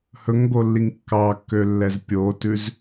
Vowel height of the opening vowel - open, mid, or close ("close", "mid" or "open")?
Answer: mid